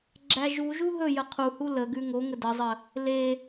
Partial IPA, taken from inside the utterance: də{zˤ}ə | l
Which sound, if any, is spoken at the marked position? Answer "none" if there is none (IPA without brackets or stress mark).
zˤ